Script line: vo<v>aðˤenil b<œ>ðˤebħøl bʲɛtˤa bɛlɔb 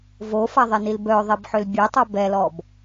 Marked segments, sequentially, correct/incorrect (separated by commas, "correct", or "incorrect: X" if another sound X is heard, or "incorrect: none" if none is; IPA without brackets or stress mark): incorrect: f, correct